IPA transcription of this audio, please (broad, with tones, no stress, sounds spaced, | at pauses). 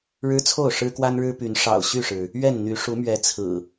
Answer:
ɻ ɻ̩˦ t͡sʰ o˥˨ ʊ̯ ʂ ɻ̩˦ k w a˦ n ɻ ɻ̩˦ p y˨˦ n ʂ ɑ̰˨˩ ʊ̯ ɕ y˥˨ ʂ ɻ̩˩ | ɥ ɛ˥˨ n n̪ y˨˦ ʂ u˨˦ m ɥ ɛ˨˦ t͡sʰ ɹ̩˨˩